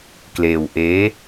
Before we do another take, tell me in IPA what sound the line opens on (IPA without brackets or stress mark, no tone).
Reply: k